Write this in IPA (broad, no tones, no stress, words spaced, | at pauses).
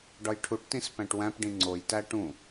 ɖɒjʈʰuʈtĩs pæ̃ʈwæ̃pɖĩ ŋ͡ǀojtæ ʈũ